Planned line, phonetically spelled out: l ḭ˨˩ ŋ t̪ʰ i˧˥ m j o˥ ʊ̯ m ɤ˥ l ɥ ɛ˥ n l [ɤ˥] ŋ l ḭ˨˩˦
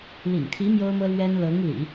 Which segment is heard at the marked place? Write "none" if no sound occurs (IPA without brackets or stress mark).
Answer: ɤ˧˥